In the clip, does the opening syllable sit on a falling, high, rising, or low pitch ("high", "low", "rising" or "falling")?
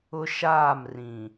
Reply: high